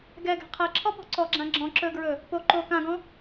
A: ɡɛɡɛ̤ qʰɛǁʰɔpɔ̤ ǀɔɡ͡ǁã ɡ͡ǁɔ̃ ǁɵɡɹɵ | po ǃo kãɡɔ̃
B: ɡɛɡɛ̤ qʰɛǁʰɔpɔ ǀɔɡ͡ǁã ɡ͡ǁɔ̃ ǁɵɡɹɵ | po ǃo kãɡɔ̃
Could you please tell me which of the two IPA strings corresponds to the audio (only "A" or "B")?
A